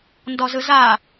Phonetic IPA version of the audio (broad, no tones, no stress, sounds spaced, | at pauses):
n d ɔ z ɯ z a